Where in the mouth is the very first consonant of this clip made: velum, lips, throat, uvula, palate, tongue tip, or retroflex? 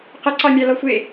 uvula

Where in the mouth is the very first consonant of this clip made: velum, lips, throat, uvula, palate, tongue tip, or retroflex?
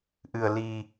throat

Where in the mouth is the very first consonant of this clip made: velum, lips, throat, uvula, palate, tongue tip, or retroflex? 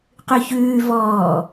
uvula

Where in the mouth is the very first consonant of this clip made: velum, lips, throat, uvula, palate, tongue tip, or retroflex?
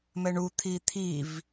lips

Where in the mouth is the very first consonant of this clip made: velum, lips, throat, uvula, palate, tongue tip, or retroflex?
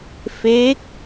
lips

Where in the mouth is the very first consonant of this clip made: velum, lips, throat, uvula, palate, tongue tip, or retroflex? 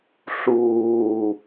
tongue tip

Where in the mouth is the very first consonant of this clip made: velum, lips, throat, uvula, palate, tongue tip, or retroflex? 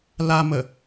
tongue tip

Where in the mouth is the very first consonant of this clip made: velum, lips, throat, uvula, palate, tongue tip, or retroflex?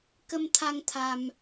velum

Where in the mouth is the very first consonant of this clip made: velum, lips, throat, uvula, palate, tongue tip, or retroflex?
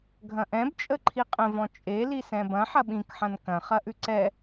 velum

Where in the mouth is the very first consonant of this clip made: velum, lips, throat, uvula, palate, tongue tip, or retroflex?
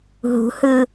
throat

